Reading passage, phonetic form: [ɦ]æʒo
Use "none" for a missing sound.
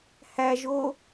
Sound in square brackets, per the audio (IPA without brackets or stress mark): h